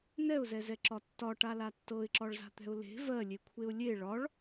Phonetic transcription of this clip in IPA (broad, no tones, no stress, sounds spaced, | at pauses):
n ɛ ʊ̯ z ɛ z ɛ ǁ ɒ tː ɒ ʈ a l a tː ɤ ɪ̯ ǁ ɒ ɭ z a̤ t̪ ɛ̤ ʊ̯ l e̤ v ɜ lʲ e kʷʰ e ʊ̯ lʲ e ɭ ɒ ɭ